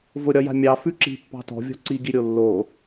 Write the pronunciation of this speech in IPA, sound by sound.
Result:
v ʊ ɾʲ ɒ j a̤ mʲ ɑ f ʉ ǁ i̤ pː ɑ̤ t ɔ̤ vʲ ɔ̤ ǀ i ɡ i ɾʲ o lː o

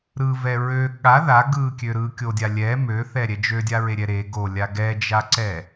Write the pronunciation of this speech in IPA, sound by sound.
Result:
ɾ ɯ v ɛ ɹ ø ɠ a ð a ɡ ɯ kʲ ø ɾ ɯ kʲ o dʲ a lʲ ɛ m ø θ ɛ ɾʲ ɛ d͡ʒ ø dʲ a ɹ e ɾʲ ɛ ɾ e ɡ o lʲ a ɡ ɛ d͡ʒ a ǀ ɛ

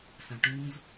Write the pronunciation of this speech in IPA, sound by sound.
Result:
s ã ʈ ũ z

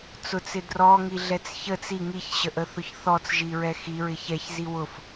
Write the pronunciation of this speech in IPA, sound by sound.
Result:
t͡s ʊ t͡s ɪ d r ɔ ŋ i ɮ ɛ t͡s ç ə t͡s i ŋ i ç ɕ ə ʔ ə θ ʊ ç θ ɔ t͡s ʒ i ɹ ɛ x i ɹ ɪ ç ɛ ç z i w ʊ f

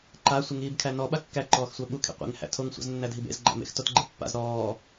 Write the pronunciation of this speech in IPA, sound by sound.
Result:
ǃ a sʷ ɪ ŋ iː b kʰ æ n ɔ ɓ a kː æ ǃ ɔː x sʷ æ ɓ u kʰ ḛ qʷ ḛ ŋ h æ̰ tʰ o ŋ sʷ a̰ z nː æ dʱ i b ḛ z ɡ͡ǃ æ̰ m ḛ x t o t ɡ͡ǃ ɪ pː a̰ z ɾ ɔː

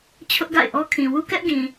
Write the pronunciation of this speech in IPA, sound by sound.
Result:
t͡ɕʰ ʊ˦ ʔ ɡ a̰˦˨ ɪ̯ ʔ ɔ˦ kʰ ĩ˨ w u˦ k ɛ˦ ʔ ɡ ĩ˨

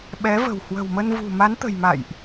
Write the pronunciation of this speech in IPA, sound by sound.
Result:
ɓ ɛ˨˦ v ə̤˨˩ w h w ə̤˨˩ w m ə˧ n v ṳ˨˩ m a˨˦ n t̪ ə̤˨˩ j m a̰˧˨ j ʔ

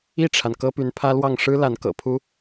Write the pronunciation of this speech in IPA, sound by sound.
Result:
i˥˩ ʈ͡ʂʰ a˩ n k ɤ˥ p y˧˥ n pʰ ä˥ l w ɑ˥˩ ŋ ʂ ɻ̩˥ l a˧˥ n k ɤ̰˨˩ pʰ u˥

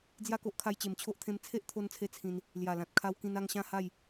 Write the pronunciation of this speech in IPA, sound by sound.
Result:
d͡z j a˥˧ k o˦ ʔ kʰ a˧ j t͡ɕ e˨˩ m t͡ɕʰ o˦ ʔ t̪ʰ ẽ˧ m t͡sʰ e˦ ʔ t̪ʰ o˦ n t͡sʰ e˦ t͡sʰ ĩ˧ n | l j a˨˩ l ã˨ t̚ kʰ a˧ w k ĩ˧ n a˥˧ ŋ ɕ ã˥˧ h a˥˧ j

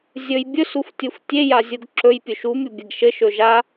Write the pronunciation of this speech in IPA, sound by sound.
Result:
zʲ ɵ j bʲ ɵ s u f tʲ u f tʲ e j a zʲ u ɡ ǁ ɵ j pʲ ɵ ʃ u mʲ u bʲ e ɡ ʃ ɘ ʃ ɵ ʒ a

